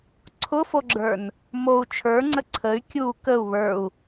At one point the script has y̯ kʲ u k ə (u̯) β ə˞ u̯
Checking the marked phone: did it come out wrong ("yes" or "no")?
no